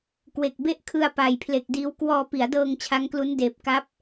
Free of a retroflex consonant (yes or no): yes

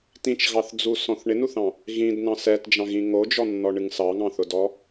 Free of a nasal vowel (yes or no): no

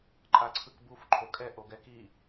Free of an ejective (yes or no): no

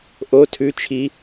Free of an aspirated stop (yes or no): no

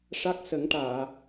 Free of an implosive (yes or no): yes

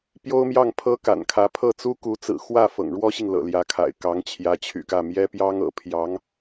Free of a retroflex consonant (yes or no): no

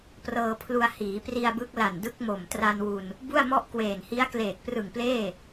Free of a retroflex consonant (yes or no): yes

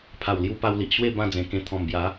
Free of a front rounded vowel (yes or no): yes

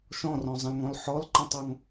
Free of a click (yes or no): no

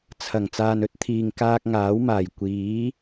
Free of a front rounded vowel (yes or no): yes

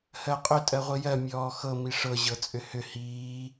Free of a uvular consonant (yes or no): no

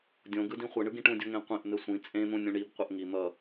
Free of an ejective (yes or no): no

